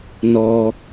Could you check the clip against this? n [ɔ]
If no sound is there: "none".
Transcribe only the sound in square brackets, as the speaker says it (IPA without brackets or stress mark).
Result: ɔ